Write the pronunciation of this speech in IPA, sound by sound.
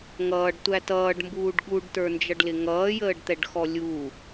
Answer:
ŋ ʌː ɖ tʷ æ t ʌː ɖ m b uː ɖ ɠ u ɖ t ə˞ n d͡ʒ ʌ ɖ l ɪ ŋ ʌː j əː ɖ t̪ ɛ ɖ x ɔ lʲ u

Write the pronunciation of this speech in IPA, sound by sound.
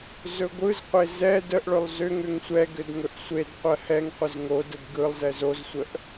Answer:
z ɵ ɡʷ ɯ z qʷ e z ɛ d ə ʔ ɭ ɵ lˠ z ʏ ŋ ʏ ŋ sʷ ɛ ɡ ʏ d ŋ ɵ ʔ sʷ e d qʷ ɜ h ɛ ŋ qʷ ə z ŋ o d ə d ɡ ɯ lˠ z ɛ z o z sʷ ə ʔ

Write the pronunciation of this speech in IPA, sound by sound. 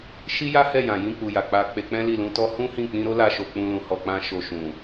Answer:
ʃ i˦ j a˦ h ɛ˦˨ j ã˨ j ĩ˧ k͡p u˨ j a˨ k͡p a˧ k͡p e˧ k͡p ɛ̃˦ l i˦˨ l ũ˧ t ɔ˦ h ũ˦ h ĩ˦˨ k͡p ĩ˧ ɾ o˦ l a˧ ʃ o˨ k͡p ũ˧ l ũ˧ h ɔ˧ k͡p ã˦ ʃ o˧ ʃ ũ˨

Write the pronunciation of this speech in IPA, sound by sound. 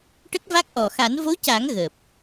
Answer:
ʈ ə˦˥ k̚ v a˦˥ k̚ ʔ ɔ˨˩ x a˨˩˦ n v o˧˥ c a˨˩˦ ŋ ɣ əː˨˩ p̚

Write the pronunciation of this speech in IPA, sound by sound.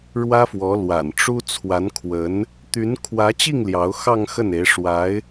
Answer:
ɻ w ä˥ f w ɔ˧˥ l w a̰˨˩ n ʈ͡ʂ u˥ t͡sʰ w a˧˥ n kʰ w ə˧˥ n | t̪ y˧˥ n kʰ w ä˧˥ t͡ɕ i˥˩ ŋ l j ɑ˧˥ ʊ̯ x ɑ˥˧ ŋ x ə˥˩ n e˧˥ ɪ̯ ʂ w a˧˥ ɪ̯

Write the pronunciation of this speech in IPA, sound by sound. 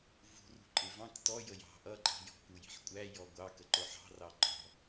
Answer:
v ṳ r ṳ ǃʼ ɪ v ɑ̃ k t ɔ j ə j ɑ̤ ʔ ʌ ǃʼ i̤ j ɔ̤ k u j i̤ ħ kʷʼ æ j ɔ ɡʷ ɑ k ə ǃ ʊ ħ ɑ̤ r ɑ ǃ ɔ̤

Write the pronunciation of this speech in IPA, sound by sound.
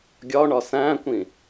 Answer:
ɡʲ ɒ ɳ ɒ s æ̃ kʷ ĩ

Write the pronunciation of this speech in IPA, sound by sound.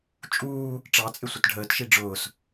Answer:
t͡ʃʼ uː | ʈ͡ʂ ɑ t͡sʼ ɪ sʷ ɪ t ɖʱ əː t ʃ i ɖ͡ʐ ʊː s

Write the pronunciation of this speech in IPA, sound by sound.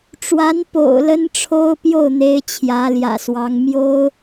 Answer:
ʈ͡ʂ w a˧˥ n p o̰˨˩ ʊ̯ l ə˥ n ʈ͡ʂʰ o˥ ʊ̯ p j o˥˩ ʊ̯ n̪ e˥ ɪ̯ t͡ɕʰ j ä˧˥ l j ä̰˨˩ s w ɑ˧˥ ŋ m j o˥ ʊ̯

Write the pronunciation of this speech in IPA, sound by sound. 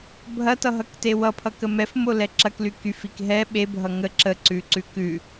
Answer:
bʱ ɐ t ʌ ɦ ʌ k t e w ʌ pʰ ʌ k ə m ɛ f m o l ɛ ǁ ɐ k l y k y f i k ɦ ɛ ɓ e bʱ ʌ ŋ ə ǁ ə ǀ ʉ ǀ ʉ k ʉ

